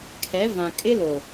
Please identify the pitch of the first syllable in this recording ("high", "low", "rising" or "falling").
rising